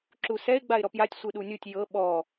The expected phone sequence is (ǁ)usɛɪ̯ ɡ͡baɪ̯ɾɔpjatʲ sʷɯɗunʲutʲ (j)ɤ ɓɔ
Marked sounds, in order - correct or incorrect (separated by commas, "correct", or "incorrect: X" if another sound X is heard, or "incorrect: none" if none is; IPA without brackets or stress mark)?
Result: correct, correct